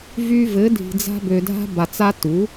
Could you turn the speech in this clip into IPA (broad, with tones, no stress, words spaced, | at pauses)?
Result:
vy˧vɘ˨˦ dʱi̤˨d͡za̤˧ bø˨dʱa̤˧ba˨t͡sa˧ tu˨˦